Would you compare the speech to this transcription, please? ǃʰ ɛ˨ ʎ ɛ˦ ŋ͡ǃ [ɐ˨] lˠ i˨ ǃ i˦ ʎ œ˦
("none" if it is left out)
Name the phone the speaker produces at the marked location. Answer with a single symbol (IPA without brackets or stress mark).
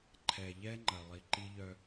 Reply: ɐ˨